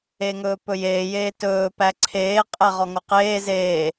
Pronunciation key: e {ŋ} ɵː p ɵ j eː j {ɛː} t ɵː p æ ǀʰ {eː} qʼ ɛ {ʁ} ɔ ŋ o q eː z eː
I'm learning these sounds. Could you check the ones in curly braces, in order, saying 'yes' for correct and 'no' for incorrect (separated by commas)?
yes, no, yes, yes